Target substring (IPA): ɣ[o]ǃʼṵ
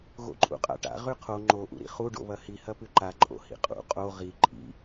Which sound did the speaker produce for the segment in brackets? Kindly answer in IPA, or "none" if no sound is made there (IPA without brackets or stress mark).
o̰